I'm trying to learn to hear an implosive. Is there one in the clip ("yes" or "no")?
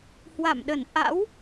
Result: yes